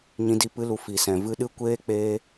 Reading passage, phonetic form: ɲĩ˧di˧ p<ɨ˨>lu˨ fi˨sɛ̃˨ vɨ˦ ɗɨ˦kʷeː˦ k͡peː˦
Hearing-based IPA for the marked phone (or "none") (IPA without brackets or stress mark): ɨ˧